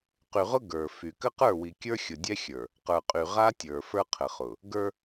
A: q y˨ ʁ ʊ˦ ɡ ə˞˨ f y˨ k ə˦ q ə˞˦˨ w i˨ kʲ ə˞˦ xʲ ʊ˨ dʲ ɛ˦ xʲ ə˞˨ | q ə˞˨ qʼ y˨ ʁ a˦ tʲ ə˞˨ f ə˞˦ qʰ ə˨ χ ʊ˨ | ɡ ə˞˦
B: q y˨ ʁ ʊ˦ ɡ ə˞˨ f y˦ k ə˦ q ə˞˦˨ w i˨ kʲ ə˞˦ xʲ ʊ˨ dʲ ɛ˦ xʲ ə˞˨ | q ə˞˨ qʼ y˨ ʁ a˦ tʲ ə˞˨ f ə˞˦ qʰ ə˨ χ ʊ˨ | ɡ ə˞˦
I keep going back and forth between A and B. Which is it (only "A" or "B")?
A